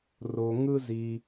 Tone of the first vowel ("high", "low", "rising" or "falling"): low